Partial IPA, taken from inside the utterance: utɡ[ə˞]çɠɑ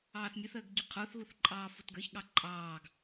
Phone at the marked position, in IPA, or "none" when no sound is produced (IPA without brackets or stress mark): ə˞